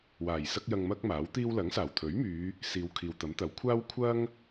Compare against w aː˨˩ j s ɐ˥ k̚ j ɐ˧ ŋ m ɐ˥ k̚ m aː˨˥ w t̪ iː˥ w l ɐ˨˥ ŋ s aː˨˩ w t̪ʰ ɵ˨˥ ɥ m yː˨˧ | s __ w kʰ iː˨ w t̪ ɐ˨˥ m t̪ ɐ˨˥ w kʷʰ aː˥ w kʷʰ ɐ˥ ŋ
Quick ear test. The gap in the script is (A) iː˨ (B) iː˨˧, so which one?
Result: B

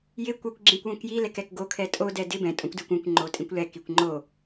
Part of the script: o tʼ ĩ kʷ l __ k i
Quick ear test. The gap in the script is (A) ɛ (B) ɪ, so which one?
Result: A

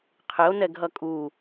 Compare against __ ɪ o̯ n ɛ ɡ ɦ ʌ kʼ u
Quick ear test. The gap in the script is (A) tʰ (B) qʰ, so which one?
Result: B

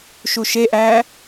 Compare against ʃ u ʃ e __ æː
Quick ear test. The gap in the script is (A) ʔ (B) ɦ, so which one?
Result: A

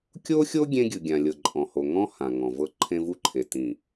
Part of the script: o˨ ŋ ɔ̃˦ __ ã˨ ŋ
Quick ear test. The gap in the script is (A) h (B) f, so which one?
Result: A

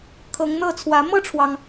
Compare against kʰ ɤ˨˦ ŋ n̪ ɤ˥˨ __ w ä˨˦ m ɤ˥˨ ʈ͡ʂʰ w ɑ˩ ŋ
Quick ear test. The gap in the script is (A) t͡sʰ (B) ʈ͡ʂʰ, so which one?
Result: A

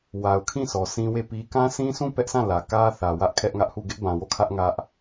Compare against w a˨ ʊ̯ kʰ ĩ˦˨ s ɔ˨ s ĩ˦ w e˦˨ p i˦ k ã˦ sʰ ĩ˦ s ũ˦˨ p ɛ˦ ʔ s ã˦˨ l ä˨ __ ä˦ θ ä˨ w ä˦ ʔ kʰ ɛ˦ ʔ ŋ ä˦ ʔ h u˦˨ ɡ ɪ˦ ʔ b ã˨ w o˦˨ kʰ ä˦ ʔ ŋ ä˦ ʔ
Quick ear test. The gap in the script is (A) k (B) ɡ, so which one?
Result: A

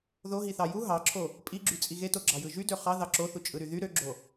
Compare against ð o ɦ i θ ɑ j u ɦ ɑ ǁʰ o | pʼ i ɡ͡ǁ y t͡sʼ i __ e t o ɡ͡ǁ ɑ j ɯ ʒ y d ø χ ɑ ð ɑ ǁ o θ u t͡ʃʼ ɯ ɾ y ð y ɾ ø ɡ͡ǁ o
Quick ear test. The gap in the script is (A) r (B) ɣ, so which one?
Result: B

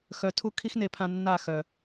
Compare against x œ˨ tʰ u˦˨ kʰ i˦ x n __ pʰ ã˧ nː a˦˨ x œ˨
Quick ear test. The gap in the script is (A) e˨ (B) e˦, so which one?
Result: A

